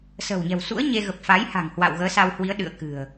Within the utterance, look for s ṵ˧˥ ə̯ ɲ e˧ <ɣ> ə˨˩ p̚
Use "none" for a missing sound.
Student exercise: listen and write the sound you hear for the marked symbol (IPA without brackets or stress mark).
ɣ